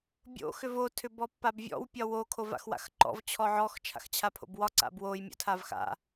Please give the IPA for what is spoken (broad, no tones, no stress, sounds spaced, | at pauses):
bʲ o̰ x ʏ v o tʰ ʏ b ɔ pː a b vʲ ɔ̰ w pʲ ɒ w o kʰ o v a̰ x w a̰ x ǃ ɔ̰ v t͡ɕʰ ɔ ʕ ɔ x t͡ʃʰ a̰ x t͡ɕʰ a pʰ o̰ b w ɒ ǀ a̰ b w o j mʲ o̰ tʰ a v x a̰